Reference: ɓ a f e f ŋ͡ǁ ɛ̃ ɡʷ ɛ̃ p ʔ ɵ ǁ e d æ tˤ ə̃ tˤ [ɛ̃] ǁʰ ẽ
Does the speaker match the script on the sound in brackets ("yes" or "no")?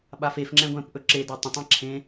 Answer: yes